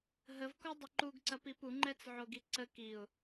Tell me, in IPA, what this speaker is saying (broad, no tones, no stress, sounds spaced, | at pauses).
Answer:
ɦ ə v k ɔ dˤ ə ǃ u ɡ ǀ ɐ p i p u ŋ͡ǃ ɛ t͡s ʕ o ɡ i ǀ ə k i ʊ̯